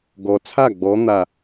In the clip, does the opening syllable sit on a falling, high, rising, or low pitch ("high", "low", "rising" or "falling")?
low